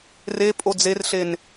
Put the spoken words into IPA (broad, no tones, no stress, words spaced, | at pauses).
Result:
re pʼod͡zerɬen